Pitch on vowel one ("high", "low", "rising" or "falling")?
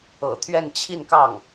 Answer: low